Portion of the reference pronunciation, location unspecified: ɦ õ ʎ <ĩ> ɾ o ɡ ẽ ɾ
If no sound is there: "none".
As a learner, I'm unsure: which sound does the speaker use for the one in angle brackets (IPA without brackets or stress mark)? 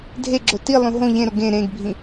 ẽ